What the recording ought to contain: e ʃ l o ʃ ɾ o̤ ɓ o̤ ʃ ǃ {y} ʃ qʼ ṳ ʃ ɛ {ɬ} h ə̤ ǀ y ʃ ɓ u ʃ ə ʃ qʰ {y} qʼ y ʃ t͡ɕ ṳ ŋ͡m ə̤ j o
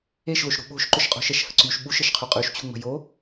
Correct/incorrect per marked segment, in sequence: incorrect, incorrect, correct

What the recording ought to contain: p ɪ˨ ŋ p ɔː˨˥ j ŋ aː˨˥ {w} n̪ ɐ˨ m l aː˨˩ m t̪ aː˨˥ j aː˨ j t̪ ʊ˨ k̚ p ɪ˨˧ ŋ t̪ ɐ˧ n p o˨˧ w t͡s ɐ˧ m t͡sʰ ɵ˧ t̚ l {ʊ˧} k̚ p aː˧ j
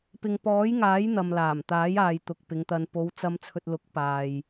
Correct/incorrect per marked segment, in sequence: incorrect, incorrect

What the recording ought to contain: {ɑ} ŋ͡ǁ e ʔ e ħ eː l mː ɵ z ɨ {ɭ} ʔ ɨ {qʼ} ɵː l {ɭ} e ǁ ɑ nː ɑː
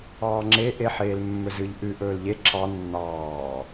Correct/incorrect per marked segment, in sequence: incorrect, incorrect, incorrect, incorrect

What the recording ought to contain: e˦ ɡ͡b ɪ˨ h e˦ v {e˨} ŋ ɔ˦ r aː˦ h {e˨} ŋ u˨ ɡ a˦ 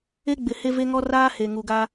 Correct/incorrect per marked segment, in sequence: incorrect, correct

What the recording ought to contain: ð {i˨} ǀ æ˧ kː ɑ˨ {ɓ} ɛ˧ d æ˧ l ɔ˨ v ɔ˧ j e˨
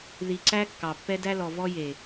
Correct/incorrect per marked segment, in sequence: correct, incorrect

